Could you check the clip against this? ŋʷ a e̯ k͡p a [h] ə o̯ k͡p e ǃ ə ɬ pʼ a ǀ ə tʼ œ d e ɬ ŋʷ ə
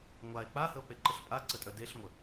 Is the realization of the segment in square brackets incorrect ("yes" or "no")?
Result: no